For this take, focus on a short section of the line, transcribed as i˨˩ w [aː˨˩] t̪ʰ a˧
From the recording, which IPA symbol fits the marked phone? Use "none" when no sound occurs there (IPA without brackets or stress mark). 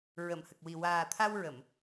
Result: aː˨˩